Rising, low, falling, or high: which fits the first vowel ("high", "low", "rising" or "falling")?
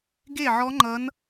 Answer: falling